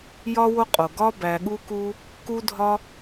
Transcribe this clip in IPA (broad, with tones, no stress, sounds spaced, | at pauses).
j ɒ˦ w o˦ qʼ o˨ ɡ ɒ˦ b æ˧ ɠ u˦ k u˦ | k u˦ dʱ ɒ˦